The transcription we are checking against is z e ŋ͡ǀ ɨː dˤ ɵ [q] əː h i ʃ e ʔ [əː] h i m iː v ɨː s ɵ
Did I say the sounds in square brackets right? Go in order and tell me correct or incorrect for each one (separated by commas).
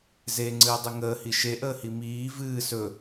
incorrect, correct